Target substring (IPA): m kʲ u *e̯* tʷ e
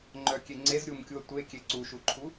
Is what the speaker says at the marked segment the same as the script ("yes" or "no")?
no